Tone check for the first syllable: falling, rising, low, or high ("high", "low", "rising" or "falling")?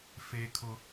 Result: high